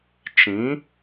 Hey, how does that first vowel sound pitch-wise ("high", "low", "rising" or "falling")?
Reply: rising